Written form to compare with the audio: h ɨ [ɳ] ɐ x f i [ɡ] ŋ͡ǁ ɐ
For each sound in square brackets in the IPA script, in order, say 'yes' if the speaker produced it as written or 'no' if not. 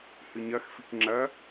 no, no

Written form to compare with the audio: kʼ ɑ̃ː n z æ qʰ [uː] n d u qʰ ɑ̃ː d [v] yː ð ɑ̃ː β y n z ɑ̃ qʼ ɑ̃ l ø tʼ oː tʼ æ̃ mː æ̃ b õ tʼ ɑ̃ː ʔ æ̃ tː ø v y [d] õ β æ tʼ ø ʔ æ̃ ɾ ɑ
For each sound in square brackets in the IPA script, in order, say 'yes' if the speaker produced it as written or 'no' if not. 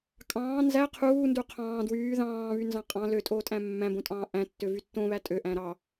yes, no, no

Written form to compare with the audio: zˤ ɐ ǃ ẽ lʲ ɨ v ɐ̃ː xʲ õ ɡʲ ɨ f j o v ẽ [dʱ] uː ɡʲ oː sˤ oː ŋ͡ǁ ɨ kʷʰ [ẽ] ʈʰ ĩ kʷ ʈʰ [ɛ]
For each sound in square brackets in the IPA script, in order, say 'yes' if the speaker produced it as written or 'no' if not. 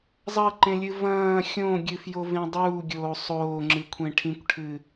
no, yes, no

